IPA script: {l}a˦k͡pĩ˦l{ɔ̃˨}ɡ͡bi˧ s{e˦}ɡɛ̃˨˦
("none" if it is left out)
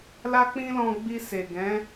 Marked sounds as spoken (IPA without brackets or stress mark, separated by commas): l, ɔ̃˧, e˨